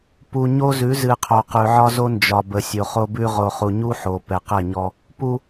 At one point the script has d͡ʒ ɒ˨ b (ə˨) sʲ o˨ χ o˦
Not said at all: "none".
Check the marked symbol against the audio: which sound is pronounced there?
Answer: ə˨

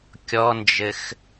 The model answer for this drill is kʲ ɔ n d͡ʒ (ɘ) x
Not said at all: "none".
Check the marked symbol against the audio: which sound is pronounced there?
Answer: ɘ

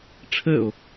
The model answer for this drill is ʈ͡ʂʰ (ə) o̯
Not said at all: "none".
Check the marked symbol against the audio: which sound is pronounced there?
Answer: ə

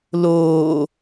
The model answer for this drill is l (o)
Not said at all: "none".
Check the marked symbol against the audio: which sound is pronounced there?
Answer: oː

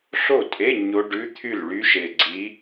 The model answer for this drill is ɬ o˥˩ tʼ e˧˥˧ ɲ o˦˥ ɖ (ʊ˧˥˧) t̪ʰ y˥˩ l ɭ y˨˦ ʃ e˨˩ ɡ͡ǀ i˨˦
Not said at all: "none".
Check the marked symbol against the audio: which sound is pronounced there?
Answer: ʉ˧˥˧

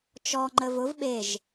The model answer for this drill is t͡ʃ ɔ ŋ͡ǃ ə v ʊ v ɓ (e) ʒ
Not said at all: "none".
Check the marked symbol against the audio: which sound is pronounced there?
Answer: e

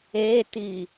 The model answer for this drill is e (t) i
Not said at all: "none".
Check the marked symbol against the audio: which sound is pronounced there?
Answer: t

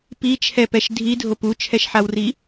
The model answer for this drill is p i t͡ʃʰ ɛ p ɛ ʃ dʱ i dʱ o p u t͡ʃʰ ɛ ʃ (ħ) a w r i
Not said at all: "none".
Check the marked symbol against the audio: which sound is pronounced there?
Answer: ħ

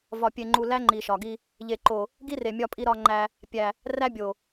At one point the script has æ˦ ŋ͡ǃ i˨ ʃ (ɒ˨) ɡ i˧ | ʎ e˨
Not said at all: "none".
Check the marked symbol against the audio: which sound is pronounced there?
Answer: ɒ˨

